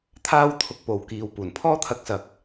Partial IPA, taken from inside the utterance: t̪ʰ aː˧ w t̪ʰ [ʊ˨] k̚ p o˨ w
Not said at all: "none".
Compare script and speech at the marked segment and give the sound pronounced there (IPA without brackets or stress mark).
ʊ˨